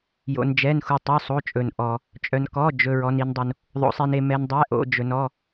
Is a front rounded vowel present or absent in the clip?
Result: present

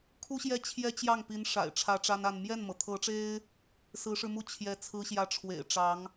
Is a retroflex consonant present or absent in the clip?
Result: present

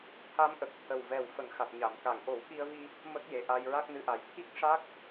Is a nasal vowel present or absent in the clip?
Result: absent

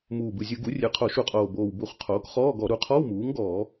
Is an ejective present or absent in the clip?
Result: present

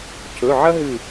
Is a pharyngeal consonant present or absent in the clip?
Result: present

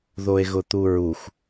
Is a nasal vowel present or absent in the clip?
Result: absent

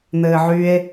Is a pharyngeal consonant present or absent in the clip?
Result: present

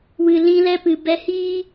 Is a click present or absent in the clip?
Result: absent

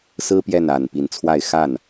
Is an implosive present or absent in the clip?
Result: absent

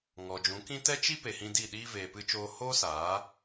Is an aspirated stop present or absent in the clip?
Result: absent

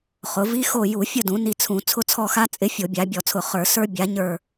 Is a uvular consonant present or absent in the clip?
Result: present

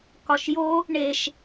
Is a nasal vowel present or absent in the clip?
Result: absent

